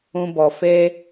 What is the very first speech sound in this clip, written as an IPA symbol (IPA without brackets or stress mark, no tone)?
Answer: ũ